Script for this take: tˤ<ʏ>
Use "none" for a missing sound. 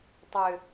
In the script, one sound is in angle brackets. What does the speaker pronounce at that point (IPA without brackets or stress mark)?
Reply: ʏ